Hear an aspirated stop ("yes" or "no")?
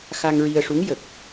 no